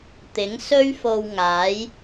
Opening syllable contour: rising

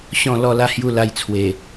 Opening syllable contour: low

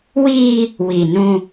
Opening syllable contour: high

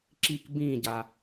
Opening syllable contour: falling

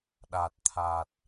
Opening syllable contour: low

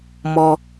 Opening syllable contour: low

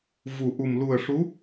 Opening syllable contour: low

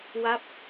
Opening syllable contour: falling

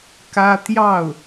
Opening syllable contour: high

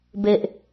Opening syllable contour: low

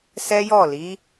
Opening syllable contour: high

